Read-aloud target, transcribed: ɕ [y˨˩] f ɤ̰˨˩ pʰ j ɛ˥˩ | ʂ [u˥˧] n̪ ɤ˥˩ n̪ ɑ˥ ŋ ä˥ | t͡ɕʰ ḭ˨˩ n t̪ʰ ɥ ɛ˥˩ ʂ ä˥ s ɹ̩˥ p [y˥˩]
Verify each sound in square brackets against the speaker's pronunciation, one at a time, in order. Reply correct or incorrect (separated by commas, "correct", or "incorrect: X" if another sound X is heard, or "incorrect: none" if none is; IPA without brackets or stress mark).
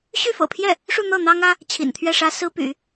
incorrect: y˥˩, correct, incorrect: y̰˨˩˦